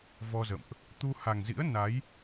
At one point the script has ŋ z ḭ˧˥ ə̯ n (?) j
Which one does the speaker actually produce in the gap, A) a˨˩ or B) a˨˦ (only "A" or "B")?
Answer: B